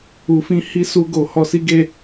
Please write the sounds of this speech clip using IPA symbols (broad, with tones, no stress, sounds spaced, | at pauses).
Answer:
u˨ f ĩ˧ h i˦ s u˧ ɡ o˨ h ɔ˧ s i˦ ɡ e˦˨